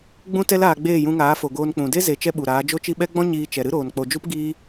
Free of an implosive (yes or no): no